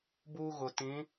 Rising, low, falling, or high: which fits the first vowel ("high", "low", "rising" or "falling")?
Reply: high